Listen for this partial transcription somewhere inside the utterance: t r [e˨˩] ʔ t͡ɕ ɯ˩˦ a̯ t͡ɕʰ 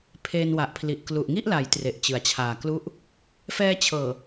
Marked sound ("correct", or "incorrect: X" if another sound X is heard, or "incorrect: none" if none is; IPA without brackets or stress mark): correct